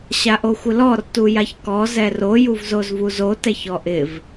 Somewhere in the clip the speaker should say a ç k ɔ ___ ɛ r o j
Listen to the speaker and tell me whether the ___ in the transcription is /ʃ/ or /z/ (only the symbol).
z